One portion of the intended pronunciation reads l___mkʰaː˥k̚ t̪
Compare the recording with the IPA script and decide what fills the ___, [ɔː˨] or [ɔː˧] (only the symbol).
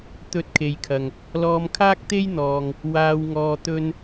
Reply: ɔː˧